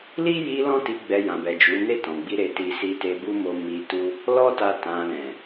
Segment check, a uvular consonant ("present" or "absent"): absent